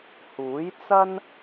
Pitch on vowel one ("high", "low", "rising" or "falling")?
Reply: rising